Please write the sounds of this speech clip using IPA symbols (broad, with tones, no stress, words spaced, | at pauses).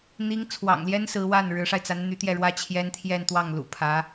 n̪i˧˥ŋt͡sʰwɑ̰˨˩ŋljɛ˥n sɹ̩˧˥wa˥˩n ɻɻ̩˧˥ʂa˧ɪ̯t͡sa˧˥n n̪y˧˥t̪jɛ˥˩ɻwä˥ t͡ɕʰjɛ˥nt̪ʰjɛ˥˧nt̪wɑ˥˩ŋ lṵ˨˩pʰä˧˥